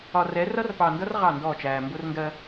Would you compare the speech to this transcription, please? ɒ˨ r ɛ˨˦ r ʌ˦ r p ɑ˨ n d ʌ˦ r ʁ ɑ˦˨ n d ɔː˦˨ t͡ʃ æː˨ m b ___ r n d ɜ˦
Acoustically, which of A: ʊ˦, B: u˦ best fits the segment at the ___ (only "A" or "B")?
A